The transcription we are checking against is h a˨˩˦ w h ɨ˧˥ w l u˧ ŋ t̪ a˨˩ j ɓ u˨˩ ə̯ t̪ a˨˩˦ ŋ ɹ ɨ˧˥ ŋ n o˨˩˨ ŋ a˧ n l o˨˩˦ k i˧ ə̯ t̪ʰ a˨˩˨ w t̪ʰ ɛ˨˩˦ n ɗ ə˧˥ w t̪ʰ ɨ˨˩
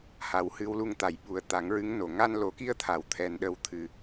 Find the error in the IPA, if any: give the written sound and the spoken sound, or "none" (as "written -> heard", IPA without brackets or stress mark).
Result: none